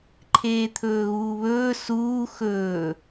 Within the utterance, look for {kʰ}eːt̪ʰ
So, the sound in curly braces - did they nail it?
no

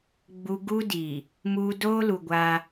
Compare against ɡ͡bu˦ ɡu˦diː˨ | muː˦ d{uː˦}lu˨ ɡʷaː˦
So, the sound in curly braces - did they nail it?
no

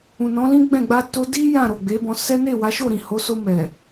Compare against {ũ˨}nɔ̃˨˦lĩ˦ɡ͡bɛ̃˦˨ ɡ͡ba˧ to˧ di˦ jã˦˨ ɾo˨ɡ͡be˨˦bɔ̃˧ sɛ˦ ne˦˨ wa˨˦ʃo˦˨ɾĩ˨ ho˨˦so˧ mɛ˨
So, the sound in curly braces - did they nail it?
yes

